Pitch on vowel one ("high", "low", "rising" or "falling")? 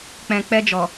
low